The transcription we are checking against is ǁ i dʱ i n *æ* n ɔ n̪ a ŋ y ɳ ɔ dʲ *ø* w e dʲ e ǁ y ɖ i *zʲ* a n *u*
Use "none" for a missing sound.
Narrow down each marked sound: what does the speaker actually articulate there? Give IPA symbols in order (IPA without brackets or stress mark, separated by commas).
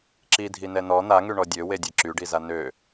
ɛ, ø, z, ø